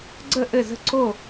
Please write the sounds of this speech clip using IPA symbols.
ɡ͡ǀ ə˥˩ ʔ ɘ˥˩ z ə̤˥˩ ǀ o˥˩

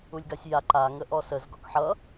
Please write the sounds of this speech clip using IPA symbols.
u lʲ ɡ a sʲ j a ǃ a ŋ ə ʔ ɔ s ə z ɡ ɔ k ħ ʌ

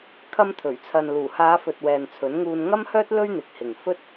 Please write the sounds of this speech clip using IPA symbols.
kʰ ɐ˧ m t̪ʰ ɵ˨˩ ɥ t͡sʰ ɐ˨ n l uː˨˩ h aː˨˧ f ɵ˨ t̚ w ɛː˨ n t͡sʰ ɵ˨˥ n ŋ uː˧ n ŋ ɐ˥ m h œː˥ t̚ l ɵ˥ ɥ n̪ ɪ˨˥ k̚ h ɪ˨ ŋ f ɵ˥ t̚

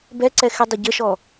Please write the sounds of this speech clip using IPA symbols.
b ɛ ǀ ɛ x ɪ dˤ ɪ ɟ ə ʃ ɔ

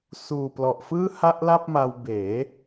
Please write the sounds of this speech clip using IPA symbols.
s uː˨˩ p l ɔ˨˩ ʔ f ɯː˥˩ h a˥˩ ʔ l a˥˩ p̚ m a˧ w b eː˩˦

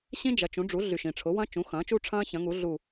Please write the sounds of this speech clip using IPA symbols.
ɕ ĩ˦˥ d͡ʒ ɐ˩˥ t͡ʃ ũ˩˥ ɖ͡ʐ u˩˥ ɮ y˩ ʃ ĩ˩ ʈ͡ʂʰ ʊ˩˥ w ɐ̃˦˥ t͡ʃ ũ˩˥ x ɐ̃ː˩˥ t͡ʃ u˦˥ ʈ͡ʂʰ ɐ̃ː˦˥ ç ɐ̃˩˥ ŋ u˩˥ ɮ u˧˩

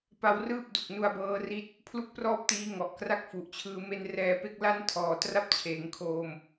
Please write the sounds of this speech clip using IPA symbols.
p a˦˥ w r ɯː˥˩ p̚ d u˨˩ k̚ n u˧ a̯ b ɤː˦˥ r i˦˥ t̚ | pʰ l u˥˩ k̚ p r ɔː˥˩ p̚ t iː˦˥ ŋ ɔ˨˩ ʔ k r a˥˩ k̚ f u˨˩ ʔ t͡ɕʰ ɯː˧ m e˧ n r ɛː˧ p e˦˥ k̚ l a˥˩ n tʰ ɔː˨˩ t r a˥˩ p̚ t͡ɕʰ eː˩˦ ŋ kʰ oː˧ m

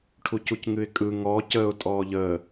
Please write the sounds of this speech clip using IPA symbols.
ʈʰ u c u c ŋ ɨ ɪ̯ kʼ ɯ ŋ ɔ c əː ʊ̯ tʼ ɔː ʎ əː

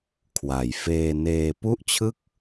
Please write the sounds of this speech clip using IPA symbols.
kʰ w a˨˩ j f eː˧ n eː˧ p u˥˩ ʔ t͡ɕʰ ɯ˥˩ k̚

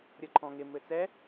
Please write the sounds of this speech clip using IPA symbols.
ɾʲ ɤ ǃʰ ɔ̃ ŋ ɪ m ɘ t͡s ɛ

